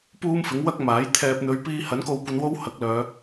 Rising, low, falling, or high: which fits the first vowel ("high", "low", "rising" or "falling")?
high